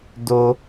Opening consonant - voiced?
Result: yes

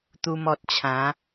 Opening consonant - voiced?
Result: no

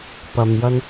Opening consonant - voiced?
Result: no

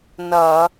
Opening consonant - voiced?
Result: yes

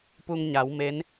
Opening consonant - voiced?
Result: no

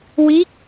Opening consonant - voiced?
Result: yes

